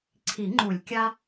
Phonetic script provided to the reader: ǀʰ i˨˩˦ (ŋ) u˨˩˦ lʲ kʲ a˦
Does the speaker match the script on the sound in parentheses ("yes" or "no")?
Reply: no